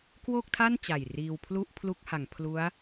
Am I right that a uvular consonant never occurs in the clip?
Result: yes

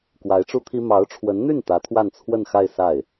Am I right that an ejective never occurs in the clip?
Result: yes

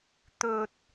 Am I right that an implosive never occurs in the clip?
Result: yes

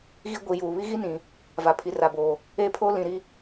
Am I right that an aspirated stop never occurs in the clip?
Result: no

